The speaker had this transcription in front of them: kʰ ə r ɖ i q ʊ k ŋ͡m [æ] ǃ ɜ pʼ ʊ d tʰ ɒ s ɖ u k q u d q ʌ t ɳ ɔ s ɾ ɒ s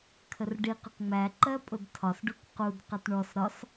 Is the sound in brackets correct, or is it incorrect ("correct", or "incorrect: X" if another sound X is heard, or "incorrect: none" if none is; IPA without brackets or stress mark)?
correct